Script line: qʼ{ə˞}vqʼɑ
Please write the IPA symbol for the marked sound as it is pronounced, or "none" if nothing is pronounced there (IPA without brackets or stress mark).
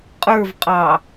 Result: ə˞